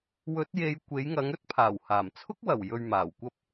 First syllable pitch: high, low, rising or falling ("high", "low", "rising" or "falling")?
rising